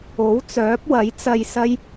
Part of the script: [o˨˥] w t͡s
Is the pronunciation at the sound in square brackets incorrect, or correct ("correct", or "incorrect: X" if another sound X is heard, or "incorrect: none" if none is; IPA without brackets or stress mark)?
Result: correct